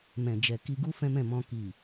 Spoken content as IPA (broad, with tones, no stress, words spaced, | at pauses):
mɛ̃˨d͡ʒɛ˨ ki˧ɡu˦ fɛ̃˦mɛ̃˦˨mɔ̃˧ ki˨